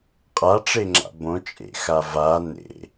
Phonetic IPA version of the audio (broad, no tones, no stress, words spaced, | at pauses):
qʼaʈ͡ʂeŋ͡ǁa̰ bõt͡ʃʼḛxa va nḛ